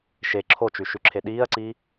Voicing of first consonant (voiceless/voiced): voiceless